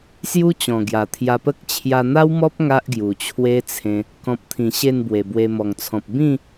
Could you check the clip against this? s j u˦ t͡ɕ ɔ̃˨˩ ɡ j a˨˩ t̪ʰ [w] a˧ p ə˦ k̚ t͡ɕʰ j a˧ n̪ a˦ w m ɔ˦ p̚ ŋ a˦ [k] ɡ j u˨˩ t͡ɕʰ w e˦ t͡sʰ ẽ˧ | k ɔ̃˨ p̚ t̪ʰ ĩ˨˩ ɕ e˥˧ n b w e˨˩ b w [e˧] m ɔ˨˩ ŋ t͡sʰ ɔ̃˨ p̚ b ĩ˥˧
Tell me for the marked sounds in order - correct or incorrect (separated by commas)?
incorrect, incorrect, correct